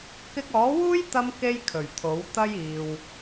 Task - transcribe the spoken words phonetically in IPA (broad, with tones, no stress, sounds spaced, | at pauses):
k ɪ˧ k̚ ɔː˨˥ w uː˥ j t̪ ɐ˥ m k e˥ j kʰ ɵ˨˩ ɥ t̪ʰ o˨˥ w t̪ ɐ˥ j iː˨ w